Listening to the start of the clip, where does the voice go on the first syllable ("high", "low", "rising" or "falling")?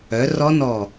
rising